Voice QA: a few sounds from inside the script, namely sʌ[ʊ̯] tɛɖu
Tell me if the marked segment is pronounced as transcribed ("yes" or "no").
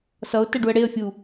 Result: yes